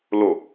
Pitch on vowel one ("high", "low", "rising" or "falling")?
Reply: low